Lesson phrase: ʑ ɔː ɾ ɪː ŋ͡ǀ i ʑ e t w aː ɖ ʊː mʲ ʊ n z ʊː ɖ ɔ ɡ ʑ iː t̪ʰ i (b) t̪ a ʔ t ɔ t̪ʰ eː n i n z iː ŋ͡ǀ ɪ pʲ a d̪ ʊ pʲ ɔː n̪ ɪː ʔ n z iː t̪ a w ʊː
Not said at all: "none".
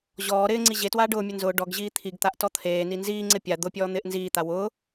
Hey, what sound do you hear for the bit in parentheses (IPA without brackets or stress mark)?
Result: ɡ